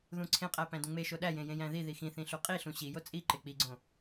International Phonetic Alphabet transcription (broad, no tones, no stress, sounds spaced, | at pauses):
ð ũ ǀʰ ẽ qʼ æ p æ̃ d ũ ŋ͡m e ʃ o ɗ æ j ẽ j ẽ j æ̃ ð i ð i x ĩ θ ĩ ɬ u qʼ i ɬ ũ ɕ i j o t͡sʼ i ǃ ɪ k͡p i ɡ͡ǀ õ